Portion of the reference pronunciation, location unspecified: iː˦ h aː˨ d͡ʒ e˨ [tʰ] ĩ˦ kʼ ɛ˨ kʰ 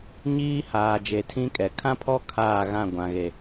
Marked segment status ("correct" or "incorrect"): correct